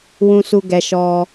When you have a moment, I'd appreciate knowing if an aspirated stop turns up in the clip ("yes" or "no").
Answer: no